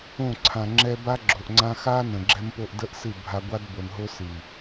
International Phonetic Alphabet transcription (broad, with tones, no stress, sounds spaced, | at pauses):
õ˦˨ ǀʰ ã˨ ŋ͡ǁ ɛ˦ b a˦ ɡ͡ǁ o˨ ʔ ŋ͡ǀ ã˦ x a˦ n ə̃˨ ɡ͡ǁ ɛ˦ m p o˦ ʔ d ə˦ ʔ s ɨ˦˨ bʱ a˦ ɡʷ a˦ d b o˨ n ɦ o˦ s ɨ˨